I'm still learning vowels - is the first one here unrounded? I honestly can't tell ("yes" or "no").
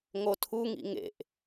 no